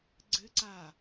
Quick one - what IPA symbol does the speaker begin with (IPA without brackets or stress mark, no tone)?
ɡ͡ǀ